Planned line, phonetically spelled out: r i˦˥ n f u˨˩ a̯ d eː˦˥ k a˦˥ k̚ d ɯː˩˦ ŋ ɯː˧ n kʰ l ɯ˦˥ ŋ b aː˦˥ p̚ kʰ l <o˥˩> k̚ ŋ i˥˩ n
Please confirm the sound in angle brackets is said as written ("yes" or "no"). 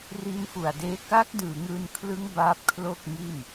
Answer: yes